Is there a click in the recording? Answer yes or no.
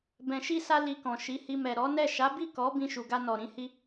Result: no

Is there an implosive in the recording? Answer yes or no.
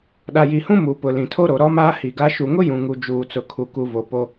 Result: yes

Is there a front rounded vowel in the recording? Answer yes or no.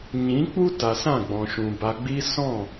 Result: no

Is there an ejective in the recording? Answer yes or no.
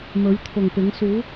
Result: no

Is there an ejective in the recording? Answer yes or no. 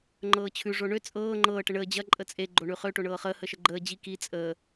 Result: yes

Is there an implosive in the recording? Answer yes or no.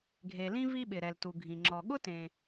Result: yes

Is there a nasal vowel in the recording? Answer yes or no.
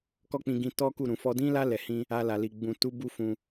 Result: yes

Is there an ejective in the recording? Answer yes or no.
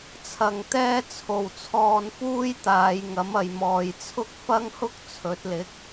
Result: no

